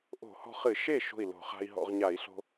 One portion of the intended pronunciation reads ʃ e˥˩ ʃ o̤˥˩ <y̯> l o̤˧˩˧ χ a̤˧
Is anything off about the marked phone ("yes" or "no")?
yes